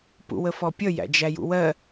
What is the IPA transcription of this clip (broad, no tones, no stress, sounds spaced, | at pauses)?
p ṵ w ə f ɔ pʲ ʌ j æ̰ d͡ʒ æ j ṵ w ɜ